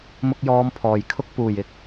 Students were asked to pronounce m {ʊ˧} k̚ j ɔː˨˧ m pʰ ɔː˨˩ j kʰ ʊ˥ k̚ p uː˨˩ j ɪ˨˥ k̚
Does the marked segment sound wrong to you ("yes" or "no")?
no